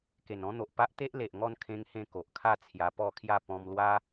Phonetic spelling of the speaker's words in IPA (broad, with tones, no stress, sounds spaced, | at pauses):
k e˨˩ n ɔ̃˦ n̪ o˨ ʔ p a˦ ʔ t̪ e˦ ʔ l e˨ ʔ ŋ ɔ˥˧ n kʰ ẽ˦ ŋ h ẽ˥˧ k o˨ ʔ kʰ a˥˧ t͡sʰ j a˧ p ɔ˥˧ kʰ j a˥˧ p ɔ̃˧ m l w a˦